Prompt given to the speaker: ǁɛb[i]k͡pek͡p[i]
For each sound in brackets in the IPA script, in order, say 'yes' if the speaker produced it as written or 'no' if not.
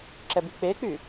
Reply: yes, no

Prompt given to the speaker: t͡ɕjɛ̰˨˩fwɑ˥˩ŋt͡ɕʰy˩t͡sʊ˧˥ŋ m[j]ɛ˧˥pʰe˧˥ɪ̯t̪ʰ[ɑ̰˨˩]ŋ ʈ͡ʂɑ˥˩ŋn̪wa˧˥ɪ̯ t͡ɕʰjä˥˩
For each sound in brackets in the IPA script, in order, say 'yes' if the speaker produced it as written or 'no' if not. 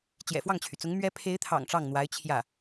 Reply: no, yes

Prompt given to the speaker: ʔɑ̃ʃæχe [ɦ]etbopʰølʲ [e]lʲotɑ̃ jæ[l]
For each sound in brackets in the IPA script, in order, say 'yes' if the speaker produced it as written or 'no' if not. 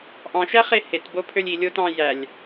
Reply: no, no, no

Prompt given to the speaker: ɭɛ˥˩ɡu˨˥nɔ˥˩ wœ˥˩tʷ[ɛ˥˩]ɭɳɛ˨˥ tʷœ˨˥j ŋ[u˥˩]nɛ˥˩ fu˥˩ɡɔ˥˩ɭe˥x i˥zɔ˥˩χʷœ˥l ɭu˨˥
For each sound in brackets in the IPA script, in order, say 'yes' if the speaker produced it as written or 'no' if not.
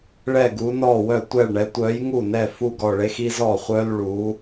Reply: yes, yes

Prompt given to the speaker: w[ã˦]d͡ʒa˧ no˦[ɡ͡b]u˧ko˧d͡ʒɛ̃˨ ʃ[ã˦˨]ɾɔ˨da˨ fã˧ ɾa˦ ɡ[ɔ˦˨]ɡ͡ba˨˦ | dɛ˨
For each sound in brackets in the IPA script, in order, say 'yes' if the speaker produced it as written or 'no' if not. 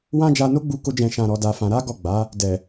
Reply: yes, yes, no, yes

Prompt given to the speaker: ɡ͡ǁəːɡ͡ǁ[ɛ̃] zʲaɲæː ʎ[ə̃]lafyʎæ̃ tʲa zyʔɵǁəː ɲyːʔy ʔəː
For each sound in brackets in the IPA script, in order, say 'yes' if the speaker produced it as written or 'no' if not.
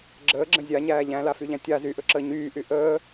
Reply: no, no

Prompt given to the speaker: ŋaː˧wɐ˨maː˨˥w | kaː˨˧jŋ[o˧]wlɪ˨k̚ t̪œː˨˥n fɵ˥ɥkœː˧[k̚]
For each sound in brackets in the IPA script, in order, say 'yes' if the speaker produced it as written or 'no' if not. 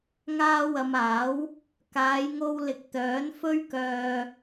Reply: yes, no

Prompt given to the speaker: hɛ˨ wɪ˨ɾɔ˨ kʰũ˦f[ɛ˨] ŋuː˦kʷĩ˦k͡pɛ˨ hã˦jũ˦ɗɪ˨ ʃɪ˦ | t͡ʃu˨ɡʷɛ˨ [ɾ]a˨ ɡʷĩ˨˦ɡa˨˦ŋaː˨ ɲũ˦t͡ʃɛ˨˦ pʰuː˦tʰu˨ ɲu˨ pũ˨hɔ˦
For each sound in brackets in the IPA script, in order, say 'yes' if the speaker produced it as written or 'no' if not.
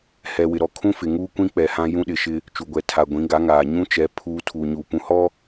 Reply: no, no

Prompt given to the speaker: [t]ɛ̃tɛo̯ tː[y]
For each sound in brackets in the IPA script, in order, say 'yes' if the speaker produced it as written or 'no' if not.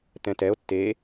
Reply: yes, no

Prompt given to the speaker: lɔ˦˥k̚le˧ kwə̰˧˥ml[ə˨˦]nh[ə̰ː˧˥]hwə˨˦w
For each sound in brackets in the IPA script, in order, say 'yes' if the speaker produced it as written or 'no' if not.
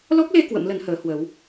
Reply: yes, no

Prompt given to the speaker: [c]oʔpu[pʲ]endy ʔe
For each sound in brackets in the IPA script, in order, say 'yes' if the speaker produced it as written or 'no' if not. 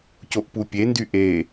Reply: yes, yes

